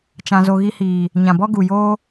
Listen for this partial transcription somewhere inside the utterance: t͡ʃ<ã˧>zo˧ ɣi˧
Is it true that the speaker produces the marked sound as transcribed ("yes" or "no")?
yes